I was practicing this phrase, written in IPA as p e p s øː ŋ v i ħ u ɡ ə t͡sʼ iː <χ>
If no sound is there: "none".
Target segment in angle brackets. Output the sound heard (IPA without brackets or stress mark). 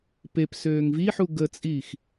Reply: x